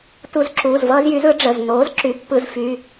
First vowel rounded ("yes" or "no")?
yes